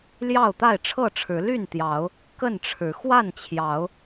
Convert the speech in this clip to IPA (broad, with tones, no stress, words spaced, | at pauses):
ljɑ˥˨ʊ̯t̪a˥˨ɪ̯ ʈ͡ʂʰɤ˥˨ʈ͡ʂʰɻ̩˨˦ ly˥˨n t̪jɑ˨˦ʊ̯ | kə˥˨nʈ͡ʂʰɻ̩˨˦ xwa˥˨nt͡ɕʰjɑ˨˦ʊ̯